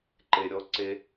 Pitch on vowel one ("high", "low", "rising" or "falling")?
low